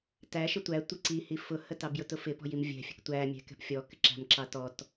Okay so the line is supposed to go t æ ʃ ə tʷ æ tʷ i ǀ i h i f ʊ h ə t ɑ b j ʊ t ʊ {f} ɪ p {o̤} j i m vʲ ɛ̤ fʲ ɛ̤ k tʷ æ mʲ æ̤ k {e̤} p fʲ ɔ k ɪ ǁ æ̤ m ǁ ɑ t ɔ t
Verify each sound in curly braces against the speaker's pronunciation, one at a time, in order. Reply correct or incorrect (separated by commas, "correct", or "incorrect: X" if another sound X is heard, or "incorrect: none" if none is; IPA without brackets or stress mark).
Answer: correct, incorrect: ɔ̤, incorrect: ɛ̤